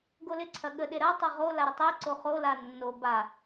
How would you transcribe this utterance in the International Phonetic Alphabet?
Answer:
ɡ o l ɪ ǀʰ ɐ ɠ ə ɗ e ɾ ɐ tˤ o ʁ o l a ɾ ə tˤ e ǀ o χ o l a nː o b a

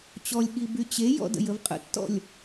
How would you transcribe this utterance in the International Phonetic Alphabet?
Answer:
t͡ɕ ɔ lʲ ɠ i b y t͡ɕ e j ɔ̰ d ə̰ j ə v qʼ ə̰ tː ɔ̰ lʲ

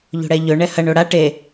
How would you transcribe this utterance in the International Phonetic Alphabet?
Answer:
ʎ o̤ ɽ ɛ ʎ ɵ ɳ ɛ h ɐ ɳ o ɽ a ʈ e

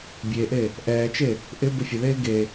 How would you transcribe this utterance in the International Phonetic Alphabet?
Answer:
bʲ e ʔ e | ʔ ɛː t͡ʃ e | ʔ ɪ b ʊ fʲ ʊ ð eː ɡ e

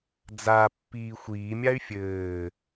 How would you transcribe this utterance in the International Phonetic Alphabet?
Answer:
d͡z a pː iː xʷ iː mʲ a y̯ fʲ ɘː

